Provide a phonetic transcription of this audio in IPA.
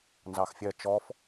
n z ɑ x fʲ ɜ t͡ʃ ɔ f

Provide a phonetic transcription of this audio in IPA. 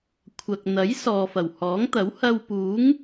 kʷʰ ɐ˨ k̚ n̪ ɐ˨˥ j s ɔː˨ f ɐ˨˩ w h ɔː˨˥ ŋ t̪ ɐ˨˥ w h ɐ˧ w p uː˨˥ ŋ

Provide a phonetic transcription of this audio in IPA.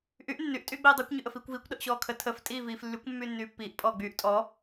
ʔ y ʔ nː y ʔ tʼ yː ɡ͡b iː dˤ əː kʷ ɲ y ʔ ə f iː kʷ v iː kʷ ɗ ə ʔ ɕ ɔː kʰ ə tʰ ə f tʼ iː v iː f lː y kʷ mː yː nː yː pː iː ʔ pʼ ɔː ɡ͡b yː ʔ tʼ ɔ

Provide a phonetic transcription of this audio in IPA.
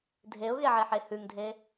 dʱ e ʊ̯ ɣ e ʕ e ħ e h ʉ ŋ dʱ e

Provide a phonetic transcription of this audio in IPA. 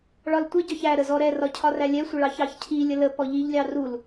ɭ ɒ l tʷ ə ɟ ɒ ç æ ɾ ə z ɔ ɾ ɛ r ɒ cʰ ɒ r æ lʲ ɛ sʷ ə ɭ ɑ ç ɑ ç cʰ i lʲ ə l ə p ɔ ʎ i ʎ lʲ ɑ r u l

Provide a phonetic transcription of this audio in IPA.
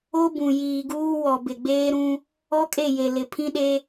o˦ b ũ˨ j iː˨ ɡ uː˦ w ɔ˨ b ɪ˨ ɡ͡b eː˦ ɾ ũ˦ | ɔ˦ kʼ e˦˨ j e˨ l ɪ˨ pʰ ĩ˦ ɗ e˦

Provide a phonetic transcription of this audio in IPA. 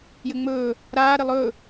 j ɘ ŋ͡m ɵː | ɾ aː ɾ ɘ lˠ ɵː

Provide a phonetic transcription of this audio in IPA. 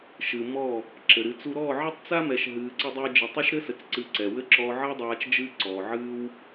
ʃ ɨ˨ m ɔ˦˨ | ǁ ɘ˨ ɾ ɨ˧ t͡s u˦ ɾ ɔː˦˨ ʕ ɘ˦ tˤ t͡s a˦ m ɛ˨ ʃ ɦ ɨː˧ ǀ ə˦ dˤ ɜ˦ d͡ʒ ɨ˨ tˤ ɵ˦ ʃ ɾ ɘ˦ s ɘ˨ t͡s ǀ ɨ˧ ǀ ɛ˨ w ɘ˦ ǁ ɔ˧ ʕ ɜ˦ dˤ aː˧ t͡ʃ d͡ʒ ɨː˦ ǀ ɔː˨ ʕ ɨː˦ w

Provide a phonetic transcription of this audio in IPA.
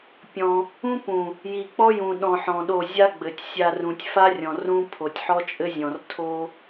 pʲ ɔ̃˧ | ũ˦ p ũ˨ | j i˨ k͡p ɔ˦ j ũ˨ ɗ ɔ̃˨ ħ ɔ̃˨ ɗ o˦˨ zʲ a˦ ɡ͡b ɘ˨ tʲ sʲ a˧ r ũ˨ tʲ f a˦ rʲ ɔ̃˨ r ũ˦ pʰ o˨ tʲ ħ ɔ˦ t͡ʃʼ ɘ˦ zʲ ɔ̃˨ r tʰ o˦

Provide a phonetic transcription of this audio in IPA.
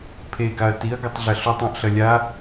pʰ e ɡ a ɐ̯ t i ɐ̯ ɡ ɘ tˤ ɮ ɐ ɬ u tˤ õ ʔ ɬ ɐ lʲ a

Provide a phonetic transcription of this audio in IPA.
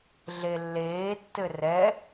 ɮ e lː eː tː ɘ r ɛ

